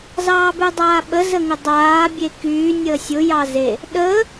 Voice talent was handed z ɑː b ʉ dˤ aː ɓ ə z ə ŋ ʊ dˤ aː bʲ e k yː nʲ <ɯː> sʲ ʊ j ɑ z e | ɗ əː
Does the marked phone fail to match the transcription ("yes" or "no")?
yes